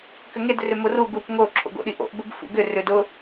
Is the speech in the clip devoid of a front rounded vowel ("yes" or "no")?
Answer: no